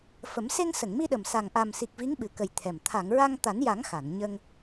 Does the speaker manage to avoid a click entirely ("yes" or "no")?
yes